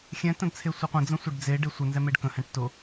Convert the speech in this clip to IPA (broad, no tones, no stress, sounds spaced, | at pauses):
xʲ ɛ̃ t ə̃ d t͡sʰ e sʷ ə qʷ ə̃ d͡z ə̃ sʷ ɛ ɖ d͡z e ɖ e sʷ ə n z ɛ m e ɖ k ə̃ h ɛ̃ ʈ t ʊ